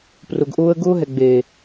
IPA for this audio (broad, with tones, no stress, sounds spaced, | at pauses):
p r ʊ˨ ɡ ʔ ʊː˦ ə̯ ɡ ʊː˦ ɦ ɛ˨ ɡ͡b eː˨